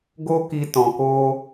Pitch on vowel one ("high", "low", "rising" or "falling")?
high